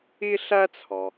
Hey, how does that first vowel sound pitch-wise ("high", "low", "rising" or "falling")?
high